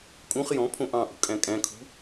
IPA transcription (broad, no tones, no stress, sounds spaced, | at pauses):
kʼ ũ χ j ɔ̃ pʰ õ ʔ ɑ̃ ʔ ṳ kʼ æ̃ kʼ æ̃ kʰ ṳ